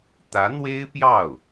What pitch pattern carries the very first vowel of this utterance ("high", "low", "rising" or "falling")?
rising